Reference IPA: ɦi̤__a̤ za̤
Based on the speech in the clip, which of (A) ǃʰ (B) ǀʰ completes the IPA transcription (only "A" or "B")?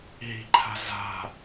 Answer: A